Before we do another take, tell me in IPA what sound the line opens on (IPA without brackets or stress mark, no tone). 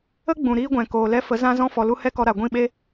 ə